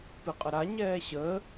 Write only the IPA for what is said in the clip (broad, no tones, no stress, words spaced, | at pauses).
pɨqʼəɾa ɲɛːɕəː